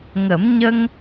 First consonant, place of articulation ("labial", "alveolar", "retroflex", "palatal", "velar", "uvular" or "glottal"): velar